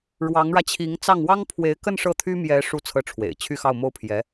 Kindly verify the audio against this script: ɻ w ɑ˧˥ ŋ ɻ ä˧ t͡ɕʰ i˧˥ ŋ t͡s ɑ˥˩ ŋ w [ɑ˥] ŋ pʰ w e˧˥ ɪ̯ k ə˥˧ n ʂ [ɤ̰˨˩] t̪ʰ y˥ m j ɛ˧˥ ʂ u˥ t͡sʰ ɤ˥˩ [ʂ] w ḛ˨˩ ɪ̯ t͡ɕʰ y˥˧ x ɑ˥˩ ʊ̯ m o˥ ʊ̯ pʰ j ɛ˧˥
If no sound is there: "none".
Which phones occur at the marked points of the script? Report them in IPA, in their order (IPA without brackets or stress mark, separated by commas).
ɑ˥, ɤ˥˩, ʈ͡ʂʰ